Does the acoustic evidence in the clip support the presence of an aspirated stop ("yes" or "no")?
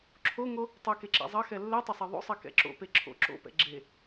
yes